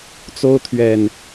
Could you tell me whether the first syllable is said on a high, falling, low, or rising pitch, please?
high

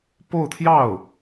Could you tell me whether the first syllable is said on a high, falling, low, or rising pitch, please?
falling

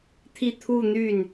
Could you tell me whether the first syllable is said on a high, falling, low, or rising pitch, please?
falling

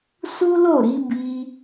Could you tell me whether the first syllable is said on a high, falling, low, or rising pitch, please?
high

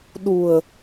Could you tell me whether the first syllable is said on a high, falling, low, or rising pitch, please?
low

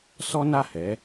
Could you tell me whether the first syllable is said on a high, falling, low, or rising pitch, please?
high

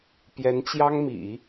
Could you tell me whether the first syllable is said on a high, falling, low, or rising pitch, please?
rising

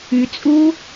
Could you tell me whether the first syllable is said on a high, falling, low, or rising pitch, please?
low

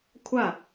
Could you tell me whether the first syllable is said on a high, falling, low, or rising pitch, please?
falling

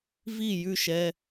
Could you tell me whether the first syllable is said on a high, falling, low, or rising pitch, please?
falling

